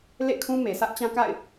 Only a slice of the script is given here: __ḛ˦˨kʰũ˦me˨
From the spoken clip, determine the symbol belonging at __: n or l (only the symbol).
l